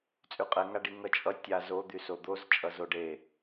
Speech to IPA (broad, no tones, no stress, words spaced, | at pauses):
t͡sʼyqʼɛŋaɖi ŋʌt͡ʃʼʌ tʲa zo d̪ysod̪oz t͡ʃʼʌzoɖe